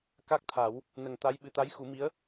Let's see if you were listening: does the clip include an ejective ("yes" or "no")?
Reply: no